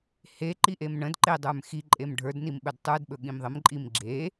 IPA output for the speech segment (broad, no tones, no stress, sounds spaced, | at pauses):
h e ǃ i ʔ e m ɳ ə̃ d ǃ e dˤ ə˞ m x i ǃʼ e m ɖʱ ə˞ d n i m ɓ ɵ d tˤ ə˞ d ɓ ɵ ɠ ĩ m ðˤ ə m ǃʼ i m ɡ͡ǁ e